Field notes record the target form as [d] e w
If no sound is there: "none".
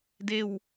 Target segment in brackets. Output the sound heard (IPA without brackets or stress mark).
d